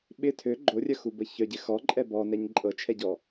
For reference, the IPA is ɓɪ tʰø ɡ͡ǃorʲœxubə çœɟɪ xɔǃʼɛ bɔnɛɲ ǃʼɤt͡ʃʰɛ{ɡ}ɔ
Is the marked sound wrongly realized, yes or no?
yes